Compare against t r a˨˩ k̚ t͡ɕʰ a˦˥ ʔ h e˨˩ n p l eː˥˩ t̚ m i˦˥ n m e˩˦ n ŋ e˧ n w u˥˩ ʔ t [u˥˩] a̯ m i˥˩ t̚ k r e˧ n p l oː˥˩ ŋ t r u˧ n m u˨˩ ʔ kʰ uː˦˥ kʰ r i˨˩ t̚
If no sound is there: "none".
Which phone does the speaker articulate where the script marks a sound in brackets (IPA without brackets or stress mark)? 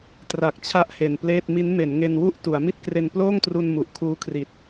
u˩˦